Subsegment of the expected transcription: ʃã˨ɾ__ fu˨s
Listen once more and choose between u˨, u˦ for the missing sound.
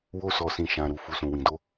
u˨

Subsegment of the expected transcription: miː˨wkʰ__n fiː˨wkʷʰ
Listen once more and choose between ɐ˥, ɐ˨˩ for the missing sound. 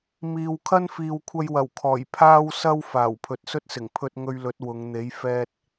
ɐ˥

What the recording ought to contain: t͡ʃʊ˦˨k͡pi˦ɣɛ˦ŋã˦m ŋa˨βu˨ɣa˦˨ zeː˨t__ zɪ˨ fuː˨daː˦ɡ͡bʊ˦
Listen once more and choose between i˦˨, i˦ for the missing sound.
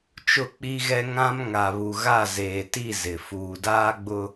i˦˨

